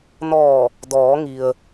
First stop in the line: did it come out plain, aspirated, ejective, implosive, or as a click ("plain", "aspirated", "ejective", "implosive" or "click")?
plain